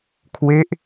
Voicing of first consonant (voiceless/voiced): voiceless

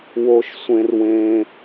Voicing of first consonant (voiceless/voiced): voiced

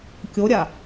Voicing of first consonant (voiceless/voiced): voiceless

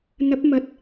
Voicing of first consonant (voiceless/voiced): voiced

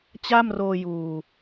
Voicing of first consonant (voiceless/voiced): voiceless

